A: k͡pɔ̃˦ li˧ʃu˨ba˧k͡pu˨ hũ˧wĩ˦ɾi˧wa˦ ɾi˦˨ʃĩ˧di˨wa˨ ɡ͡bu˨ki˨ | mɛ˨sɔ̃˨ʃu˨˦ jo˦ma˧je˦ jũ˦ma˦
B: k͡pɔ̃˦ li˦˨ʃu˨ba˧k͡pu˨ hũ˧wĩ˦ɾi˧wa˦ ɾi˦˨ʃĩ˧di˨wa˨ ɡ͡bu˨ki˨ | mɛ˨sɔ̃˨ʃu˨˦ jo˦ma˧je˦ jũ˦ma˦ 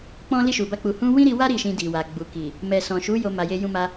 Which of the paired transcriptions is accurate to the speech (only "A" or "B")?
B